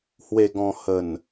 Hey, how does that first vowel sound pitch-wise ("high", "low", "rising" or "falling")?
low